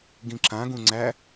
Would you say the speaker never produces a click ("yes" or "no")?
no